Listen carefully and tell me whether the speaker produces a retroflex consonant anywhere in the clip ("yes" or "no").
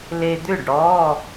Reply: yes